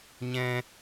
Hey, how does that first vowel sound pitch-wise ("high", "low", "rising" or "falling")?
high